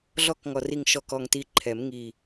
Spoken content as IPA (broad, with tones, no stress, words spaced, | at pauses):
ɮɔ˧˥kŋɔ˨˩ ri˨˩ŋʃɔ˨˩kɔ˨˩ŋti˨˩ ǃʰɛ˨˩˦m ŋi˨˩